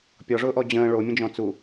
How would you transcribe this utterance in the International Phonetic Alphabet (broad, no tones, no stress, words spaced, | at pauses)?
pʲɔʐʊːʔɔ d͡ʑə̃ː ɭomʲə̃d͡ʒɔ̃ t͡su